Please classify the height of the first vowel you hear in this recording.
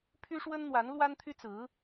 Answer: high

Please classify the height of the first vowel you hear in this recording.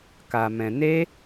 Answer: low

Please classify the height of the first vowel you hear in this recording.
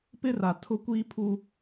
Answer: high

